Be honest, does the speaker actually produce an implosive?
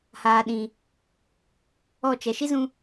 yes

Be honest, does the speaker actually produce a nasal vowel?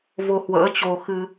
no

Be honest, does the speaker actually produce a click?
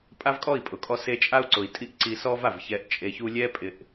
yes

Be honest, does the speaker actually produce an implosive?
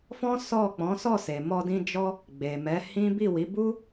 no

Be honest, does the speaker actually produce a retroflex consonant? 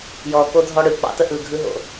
yes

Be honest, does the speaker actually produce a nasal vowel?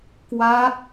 no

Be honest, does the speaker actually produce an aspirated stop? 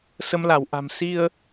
no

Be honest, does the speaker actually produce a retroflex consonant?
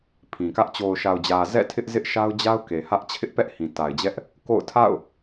no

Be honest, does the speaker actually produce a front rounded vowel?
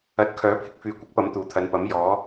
yes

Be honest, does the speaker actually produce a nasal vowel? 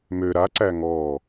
no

